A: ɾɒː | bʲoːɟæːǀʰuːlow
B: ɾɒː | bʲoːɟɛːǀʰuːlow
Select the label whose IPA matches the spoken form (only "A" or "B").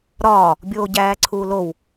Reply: A